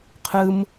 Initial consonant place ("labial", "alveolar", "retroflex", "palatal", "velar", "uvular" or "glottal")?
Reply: uvular